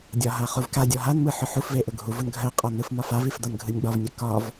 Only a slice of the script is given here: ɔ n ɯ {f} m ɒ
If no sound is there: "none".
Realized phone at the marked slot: f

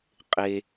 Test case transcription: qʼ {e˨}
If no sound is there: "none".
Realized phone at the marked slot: e˨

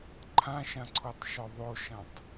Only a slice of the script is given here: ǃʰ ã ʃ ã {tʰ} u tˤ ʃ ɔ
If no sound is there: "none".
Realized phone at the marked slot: ǀʰ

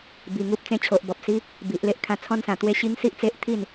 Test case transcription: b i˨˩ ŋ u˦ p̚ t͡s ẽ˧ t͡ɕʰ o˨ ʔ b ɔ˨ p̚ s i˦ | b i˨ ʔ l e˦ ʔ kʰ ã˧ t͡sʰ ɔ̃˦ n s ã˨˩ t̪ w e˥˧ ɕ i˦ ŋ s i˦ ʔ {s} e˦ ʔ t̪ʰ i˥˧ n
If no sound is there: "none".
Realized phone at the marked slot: t͡s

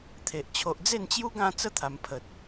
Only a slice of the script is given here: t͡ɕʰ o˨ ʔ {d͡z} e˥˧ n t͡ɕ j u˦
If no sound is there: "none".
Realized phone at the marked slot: d͡z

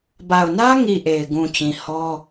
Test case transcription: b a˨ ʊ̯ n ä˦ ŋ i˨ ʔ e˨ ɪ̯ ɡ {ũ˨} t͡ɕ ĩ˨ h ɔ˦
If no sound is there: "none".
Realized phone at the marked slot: ũ˨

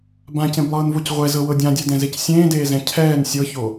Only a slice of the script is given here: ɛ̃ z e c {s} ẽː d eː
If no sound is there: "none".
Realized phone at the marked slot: sʲ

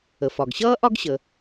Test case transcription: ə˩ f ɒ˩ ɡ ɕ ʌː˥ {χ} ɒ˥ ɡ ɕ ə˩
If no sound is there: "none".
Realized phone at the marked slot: ʔ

